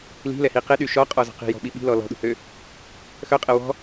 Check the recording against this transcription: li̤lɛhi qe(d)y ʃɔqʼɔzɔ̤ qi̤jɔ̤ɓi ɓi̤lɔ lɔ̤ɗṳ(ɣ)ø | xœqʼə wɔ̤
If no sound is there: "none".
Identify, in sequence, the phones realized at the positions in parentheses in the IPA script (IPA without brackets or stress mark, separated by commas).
ɗ, h